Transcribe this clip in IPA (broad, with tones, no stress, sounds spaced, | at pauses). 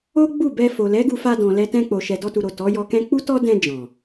o˦ ɡ͡b u˦˨ b ɛ˧ f o˨ l ɛ˨˦ ɡ u˧ f a˧ d ɔ̃˨ l ɛ˧ t ɛ̃˧ k͡p o˨ ʃ ɛ˨ d ɔ˧ t u˨ ɾ o˨ t ɔ˨˦ j ɔ˧ k ɛ̃˦ k͡p u˦ t ɔ˦ d ɛ̃˧ d͡ʒ ɔ̃˨